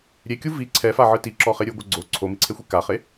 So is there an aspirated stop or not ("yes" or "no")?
yes